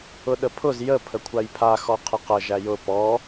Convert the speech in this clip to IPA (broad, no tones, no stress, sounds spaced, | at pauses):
ʊ ɗ ə pʰ ʊ z j ə pʰ ə kʷʰ a j pʰ a x ɔ qʰ ə q ə ʒ æ j ʊ p ɔ